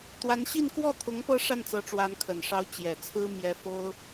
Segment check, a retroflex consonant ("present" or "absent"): present